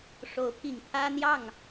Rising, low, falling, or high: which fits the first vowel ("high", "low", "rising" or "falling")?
rising